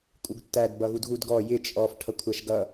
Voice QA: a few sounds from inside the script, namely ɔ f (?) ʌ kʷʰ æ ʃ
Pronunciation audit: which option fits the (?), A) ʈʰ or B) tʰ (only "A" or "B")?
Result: A